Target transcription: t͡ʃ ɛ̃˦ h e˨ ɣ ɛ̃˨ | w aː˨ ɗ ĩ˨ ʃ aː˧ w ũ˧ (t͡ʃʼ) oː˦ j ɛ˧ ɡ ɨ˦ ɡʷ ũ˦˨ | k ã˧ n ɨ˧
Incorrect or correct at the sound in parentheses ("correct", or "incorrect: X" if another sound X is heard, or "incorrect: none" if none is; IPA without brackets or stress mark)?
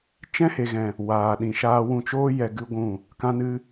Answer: incorrect: t͡ʃ